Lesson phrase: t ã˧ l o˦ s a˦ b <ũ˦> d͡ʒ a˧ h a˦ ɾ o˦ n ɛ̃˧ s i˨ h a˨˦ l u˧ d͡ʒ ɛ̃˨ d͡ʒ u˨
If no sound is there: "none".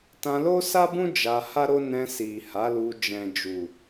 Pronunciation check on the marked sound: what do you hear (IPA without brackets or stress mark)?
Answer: ũ˦